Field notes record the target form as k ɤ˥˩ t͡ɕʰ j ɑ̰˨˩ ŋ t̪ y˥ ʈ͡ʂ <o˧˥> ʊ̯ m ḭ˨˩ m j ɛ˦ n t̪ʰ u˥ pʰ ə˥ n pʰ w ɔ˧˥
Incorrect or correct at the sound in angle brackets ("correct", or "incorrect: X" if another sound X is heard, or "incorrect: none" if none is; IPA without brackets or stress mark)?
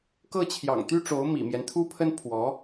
correct